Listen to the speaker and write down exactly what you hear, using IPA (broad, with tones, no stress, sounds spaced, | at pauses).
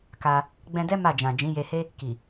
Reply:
k a˧ | ɡ͡b ɛ̃˧ d ɛ˦ m a˦˨ d͡ʒ ã˨ d͡ʒ ĩ˨˦ j e˧ h e˦ | k i˨